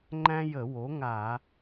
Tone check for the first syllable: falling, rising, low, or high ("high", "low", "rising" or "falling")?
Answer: high